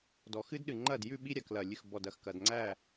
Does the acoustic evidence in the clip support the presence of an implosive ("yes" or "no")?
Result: yes